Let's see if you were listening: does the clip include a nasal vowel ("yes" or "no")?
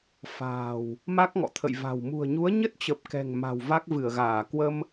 no